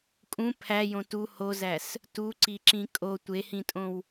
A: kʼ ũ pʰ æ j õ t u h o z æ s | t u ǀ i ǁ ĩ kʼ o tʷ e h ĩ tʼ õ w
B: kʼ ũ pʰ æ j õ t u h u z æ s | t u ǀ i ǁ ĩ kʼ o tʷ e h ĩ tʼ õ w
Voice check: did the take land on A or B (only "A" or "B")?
A